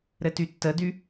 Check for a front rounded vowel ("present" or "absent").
present